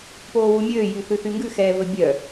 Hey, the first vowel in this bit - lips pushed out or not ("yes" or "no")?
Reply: yes